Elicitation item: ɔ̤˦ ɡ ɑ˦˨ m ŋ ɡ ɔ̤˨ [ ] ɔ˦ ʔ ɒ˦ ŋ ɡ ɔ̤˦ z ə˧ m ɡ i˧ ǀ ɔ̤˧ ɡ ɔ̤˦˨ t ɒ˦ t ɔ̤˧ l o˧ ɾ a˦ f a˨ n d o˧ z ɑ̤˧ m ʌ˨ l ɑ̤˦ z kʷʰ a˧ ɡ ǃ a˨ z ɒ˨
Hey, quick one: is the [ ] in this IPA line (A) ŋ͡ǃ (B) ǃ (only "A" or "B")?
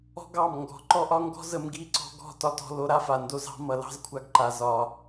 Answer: B